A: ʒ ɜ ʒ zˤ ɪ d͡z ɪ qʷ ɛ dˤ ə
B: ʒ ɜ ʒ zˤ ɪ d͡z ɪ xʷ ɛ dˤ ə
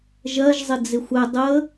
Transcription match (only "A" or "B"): B